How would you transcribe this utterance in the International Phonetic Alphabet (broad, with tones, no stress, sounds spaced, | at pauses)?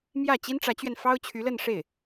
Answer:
m j ä˥˩ t͡ɕ i˥ n ʈ͡ʂ ä˧˥ t͡ɕ ɥ ɛ˧ n f ɑ˥ ʊ̯ t͡ɕʰ y˧˥ l ə˥˧ n ʂ e˥˩ ɪ̯